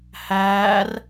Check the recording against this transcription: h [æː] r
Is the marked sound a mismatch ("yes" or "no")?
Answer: no